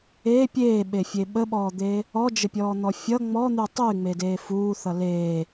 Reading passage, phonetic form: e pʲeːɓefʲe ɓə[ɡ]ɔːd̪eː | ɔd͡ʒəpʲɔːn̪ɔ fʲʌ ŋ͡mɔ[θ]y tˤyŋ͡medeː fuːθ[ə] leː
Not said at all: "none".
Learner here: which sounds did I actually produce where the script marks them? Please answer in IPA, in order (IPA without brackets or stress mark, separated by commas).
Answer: ɓ, n̪, ʌ